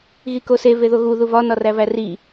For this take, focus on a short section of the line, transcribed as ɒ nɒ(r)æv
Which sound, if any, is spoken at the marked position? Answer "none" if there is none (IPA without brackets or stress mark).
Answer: r